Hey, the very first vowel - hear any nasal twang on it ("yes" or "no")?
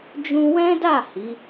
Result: yes